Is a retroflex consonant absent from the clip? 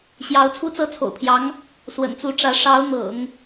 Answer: no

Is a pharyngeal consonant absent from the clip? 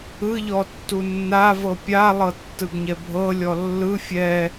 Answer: yes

